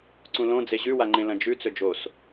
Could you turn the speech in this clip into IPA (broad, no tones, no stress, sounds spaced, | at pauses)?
ǀ ũ l õ d͡z e ʑ ʉ w a ŋ͡ǃ ẽ l ɐ̃ d͡ʒ ʉ t͡s ɵ d͡ʒ o s